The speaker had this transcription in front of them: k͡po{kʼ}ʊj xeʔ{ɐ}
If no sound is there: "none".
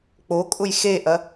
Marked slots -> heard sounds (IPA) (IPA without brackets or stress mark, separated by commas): kʼ, ɐ